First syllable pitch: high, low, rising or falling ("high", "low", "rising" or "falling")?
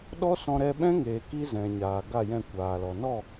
high